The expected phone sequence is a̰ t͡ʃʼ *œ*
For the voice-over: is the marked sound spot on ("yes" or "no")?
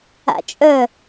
yes